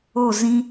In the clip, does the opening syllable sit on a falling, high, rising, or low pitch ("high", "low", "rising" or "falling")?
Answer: falling